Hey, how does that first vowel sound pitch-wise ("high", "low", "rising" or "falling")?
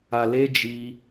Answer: low